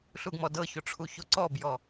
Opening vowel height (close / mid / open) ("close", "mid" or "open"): close